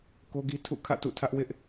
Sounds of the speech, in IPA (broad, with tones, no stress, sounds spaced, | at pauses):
k o˦ ɡ i˦ tʰ ṵ˦˨ kʰ ä̰˦˨ t ṵ˦˨ tʰ ä˦ ʔ w ɪ˦ ʔ